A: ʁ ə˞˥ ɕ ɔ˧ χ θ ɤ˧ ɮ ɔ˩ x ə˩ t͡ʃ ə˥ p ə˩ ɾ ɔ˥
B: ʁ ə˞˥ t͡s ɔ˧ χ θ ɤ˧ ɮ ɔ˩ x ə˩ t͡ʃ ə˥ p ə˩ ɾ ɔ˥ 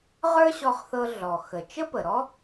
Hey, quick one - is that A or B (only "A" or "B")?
A